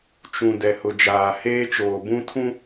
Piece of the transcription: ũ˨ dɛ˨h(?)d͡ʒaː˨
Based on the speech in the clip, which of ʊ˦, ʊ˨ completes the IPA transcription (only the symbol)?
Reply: ʊ˨